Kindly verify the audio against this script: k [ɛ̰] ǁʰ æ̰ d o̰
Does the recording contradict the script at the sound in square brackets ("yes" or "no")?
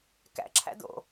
yes